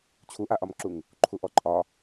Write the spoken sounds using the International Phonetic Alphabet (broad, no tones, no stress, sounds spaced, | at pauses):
t͡ɕʰ u ʔ a ʔ ɒ m ǁ u ŋ | ǃʰ u ʔ ɔ ǃʼ ɒ